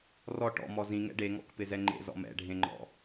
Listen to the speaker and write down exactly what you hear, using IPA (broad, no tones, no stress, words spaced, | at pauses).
rɔ ʈɔ̰mɔ zĩŋɛ̰ ɖeŋɔ̰kpɪzɛ ŋ͡ǃḛzɔ̰ mɛ̰ɖʱẽŋ͡ǃɔ̰